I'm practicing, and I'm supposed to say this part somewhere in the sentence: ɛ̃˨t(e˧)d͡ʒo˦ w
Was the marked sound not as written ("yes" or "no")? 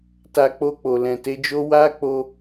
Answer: yes